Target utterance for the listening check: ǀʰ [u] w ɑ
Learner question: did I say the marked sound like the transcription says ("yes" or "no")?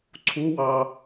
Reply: yes